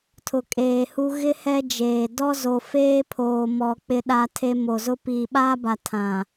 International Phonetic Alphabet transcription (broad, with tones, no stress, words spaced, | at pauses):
tʰʊ˨kʼeː˨hu˦ ɣɪ˦ hɛ˦ d͡ʒeː˨ dɔ˦zo˨feː˦pʰoː˨ mɔ˨ k͡pɪ˦ɗa˦tʰe˦ mo˨zʊ˦ piː˨ɓaː˦ba˨ tʰã˨